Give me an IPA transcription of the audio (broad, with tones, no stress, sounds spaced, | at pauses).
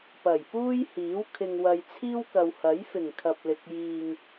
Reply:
p ɐ˨˩ j p uː˥ j h iː˨˥ w kʰ ɪ˨ ŋ w ɐ˨ j t͡sʰ iː˥ w k ɐ˨ w h ɐ˨˥ j f ɪ˨˩ ŋ kʰ ɐ˨ p̚ l ɪ˨ k̚ j iː˨ ŋ